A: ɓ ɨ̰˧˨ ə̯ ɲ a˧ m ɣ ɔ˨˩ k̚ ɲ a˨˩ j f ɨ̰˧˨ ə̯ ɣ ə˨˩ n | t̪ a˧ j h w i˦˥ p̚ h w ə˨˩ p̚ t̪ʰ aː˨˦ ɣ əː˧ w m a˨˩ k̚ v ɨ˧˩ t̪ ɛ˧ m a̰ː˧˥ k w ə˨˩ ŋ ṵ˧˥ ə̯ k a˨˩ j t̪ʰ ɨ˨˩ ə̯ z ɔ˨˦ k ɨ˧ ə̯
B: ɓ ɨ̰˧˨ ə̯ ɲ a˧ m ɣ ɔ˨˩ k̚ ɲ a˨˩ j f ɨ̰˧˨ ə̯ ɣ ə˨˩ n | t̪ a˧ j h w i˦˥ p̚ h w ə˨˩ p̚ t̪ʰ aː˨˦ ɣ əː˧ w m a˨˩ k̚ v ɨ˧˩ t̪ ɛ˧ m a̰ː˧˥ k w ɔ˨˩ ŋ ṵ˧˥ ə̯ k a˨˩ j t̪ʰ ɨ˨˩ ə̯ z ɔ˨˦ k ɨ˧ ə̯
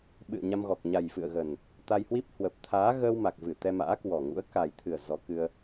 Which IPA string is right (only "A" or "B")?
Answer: B